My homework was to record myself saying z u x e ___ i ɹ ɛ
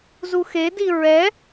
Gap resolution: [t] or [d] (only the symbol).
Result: d